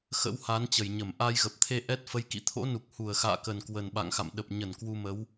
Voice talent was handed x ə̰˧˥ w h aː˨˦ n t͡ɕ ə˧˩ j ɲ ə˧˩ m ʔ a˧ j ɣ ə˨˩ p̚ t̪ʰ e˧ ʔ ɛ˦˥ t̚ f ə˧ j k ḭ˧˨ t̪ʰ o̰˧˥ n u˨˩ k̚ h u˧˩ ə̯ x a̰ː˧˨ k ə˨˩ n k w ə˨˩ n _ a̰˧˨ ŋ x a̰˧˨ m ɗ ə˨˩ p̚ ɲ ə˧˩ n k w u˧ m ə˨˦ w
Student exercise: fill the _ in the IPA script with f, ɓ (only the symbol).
ɓ